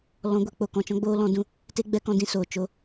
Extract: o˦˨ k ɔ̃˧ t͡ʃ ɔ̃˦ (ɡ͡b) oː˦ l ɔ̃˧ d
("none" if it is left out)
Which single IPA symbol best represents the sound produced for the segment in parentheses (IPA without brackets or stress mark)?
ɡ͡b